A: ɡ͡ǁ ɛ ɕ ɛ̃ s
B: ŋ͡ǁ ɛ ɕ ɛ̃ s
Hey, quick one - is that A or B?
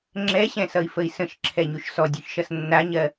B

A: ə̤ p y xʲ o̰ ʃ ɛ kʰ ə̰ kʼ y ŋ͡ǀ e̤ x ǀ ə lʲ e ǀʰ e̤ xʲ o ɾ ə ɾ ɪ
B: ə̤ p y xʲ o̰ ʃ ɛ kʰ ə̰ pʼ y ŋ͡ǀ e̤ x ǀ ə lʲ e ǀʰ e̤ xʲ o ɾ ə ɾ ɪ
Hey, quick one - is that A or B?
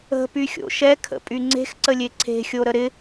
B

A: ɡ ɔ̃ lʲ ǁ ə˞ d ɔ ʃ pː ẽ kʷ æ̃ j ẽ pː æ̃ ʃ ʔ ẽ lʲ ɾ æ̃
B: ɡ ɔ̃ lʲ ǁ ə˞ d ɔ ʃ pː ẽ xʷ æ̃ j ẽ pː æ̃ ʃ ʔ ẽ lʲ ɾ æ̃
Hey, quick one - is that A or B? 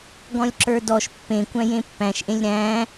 A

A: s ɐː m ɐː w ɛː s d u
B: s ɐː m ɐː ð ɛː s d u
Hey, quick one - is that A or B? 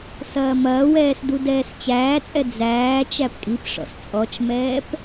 A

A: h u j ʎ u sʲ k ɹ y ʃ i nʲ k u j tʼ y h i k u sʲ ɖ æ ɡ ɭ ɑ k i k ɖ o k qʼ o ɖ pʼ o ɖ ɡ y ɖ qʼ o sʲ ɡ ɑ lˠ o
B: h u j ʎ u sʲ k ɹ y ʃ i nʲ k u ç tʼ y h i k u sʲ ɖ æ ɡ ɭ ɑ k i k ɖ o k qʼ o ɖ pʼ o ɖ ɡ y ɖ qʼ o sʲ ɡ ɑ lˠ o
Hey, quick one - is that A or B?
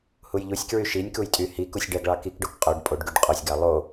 A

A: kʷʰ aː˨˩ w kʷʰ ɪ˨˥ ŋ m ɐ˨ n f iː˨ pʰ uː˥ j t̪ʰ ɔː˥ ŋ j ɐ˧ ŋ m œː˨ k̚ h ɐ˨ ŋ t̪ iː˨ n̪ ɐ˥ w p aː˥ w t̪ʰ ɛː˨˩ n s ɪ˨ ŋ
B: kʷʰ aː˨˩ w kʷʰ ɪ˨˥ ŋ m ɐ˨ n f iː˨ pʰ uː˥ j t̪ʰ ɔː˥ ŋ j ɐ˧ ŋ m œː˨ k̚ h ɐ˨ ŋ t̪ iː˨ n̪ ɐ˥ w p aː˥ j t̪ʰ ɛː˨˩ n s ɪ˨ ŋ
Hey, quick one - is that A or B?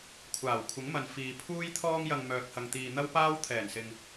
A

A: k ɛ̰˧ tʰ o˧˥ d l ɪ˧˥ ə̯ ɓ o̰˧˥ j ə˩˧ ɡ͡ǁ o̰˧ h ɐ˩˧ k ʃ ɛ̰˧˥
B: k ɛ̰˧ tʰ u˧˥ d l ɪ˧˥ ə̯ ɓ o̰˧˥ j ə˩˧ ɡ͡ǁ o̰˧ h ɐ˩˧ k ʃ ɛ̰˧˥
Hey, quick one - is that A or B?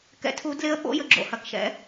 B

